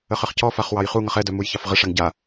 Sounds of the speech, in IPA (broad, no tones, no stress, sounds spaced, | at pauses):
ə χ ə χ c ɔ f a χ w ɑ j χ u ŋ ʌ χ ɛ d œ m u j ç ɑ f ʁ ə ʂ a ŋ ɟ a